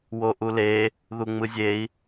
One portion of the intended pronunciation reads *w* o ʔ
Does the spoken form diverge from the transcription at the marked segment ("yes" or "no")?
no